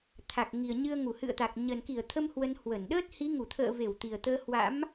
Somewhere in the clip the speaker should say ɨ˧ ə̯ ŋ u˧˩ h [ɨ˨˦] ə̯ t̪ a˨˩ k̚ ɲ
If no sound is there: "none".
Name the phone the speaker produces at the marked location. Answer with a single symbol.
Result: ɨ̰˧˨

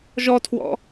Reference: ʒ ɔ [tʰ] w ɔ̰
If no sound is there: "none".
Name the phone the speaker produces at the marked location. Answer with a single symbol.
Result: tʰ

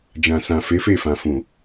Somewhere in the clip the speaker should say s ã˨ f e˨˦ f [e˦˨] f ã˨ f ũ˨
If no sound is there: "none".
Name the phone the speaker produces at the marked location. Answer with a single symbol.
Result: e˦˨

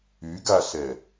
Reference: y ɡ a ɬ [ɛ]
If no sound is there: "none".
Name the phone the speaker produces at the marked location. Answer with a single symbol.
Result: ɛ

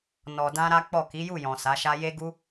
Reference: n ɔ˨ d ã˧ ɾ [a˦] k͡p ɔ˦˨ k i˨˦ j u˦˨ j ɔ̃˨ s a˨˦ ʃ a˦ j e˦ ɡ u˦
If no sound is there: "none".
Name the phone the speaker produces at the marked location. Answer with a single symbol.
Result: a˦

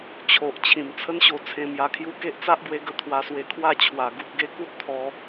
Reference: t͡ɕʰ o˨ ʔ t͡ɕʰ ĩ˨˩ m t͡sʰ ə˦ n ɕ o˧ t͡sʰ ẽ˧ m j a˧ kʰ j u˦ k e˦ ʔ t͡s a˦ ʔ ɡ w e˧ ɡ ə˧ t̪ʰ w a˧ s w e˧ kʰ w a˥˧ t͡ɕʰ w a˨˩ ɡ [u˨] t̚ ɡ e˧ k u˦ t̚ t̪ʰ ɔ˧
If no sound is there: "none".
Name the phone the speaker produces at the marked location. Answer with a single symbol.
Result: u˨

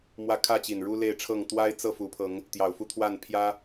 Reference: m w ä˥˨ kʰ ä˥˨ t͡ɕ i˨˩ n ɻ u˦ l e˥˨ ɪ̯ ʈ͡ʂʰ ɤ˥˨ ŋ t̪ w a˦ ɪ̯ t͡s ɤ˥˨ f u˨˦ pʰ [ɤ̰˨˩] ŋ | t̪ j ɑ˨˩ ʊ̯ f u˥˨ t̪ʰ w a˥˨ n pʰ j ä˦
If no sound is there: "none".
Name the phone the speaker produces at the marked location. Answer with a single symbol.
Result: ɤ˨˦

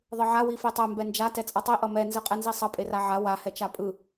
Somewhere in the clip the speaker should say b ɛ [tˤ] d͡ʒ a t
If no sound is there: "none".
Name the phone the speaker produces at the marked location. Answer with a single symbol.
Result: n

